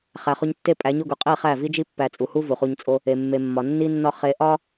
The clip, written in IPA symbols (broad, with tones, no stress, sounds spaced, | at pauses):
χ æ˨ χ o˧ ɲ tː e˧ pʼ æ˨˦ ɲ o˧ ɡ u˨ qʼ i˦˨ χ æ˦˨ v i˦ d͡ʒ i˦ pː æ˧ t͡sʼ u˨ h u˦ v u˨ χ u˧ ɲ t͡sʼ o˦ | e˨ mː e˨ mː ɒ˨ nː i˧ nː ɒ˧ χ e˧ ʔ ɒ˦